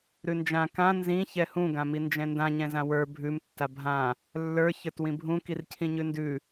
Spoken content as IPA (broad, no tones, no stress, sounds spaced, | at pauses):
ɾ ʉ n d͡ʒ ã k ã n z ĩ ç ɛ h ũ ɡ ã m i n d͡ʒ ɛ̃ n d ã ɲ ɛ̃ z ã w ə˞ bʱ ʉ m tː a bʱ ã | lː ə˞ ç ə˞ t w ĩ bʱ ũ k i r cʰ ĩ ɲ ʉ n d ʉ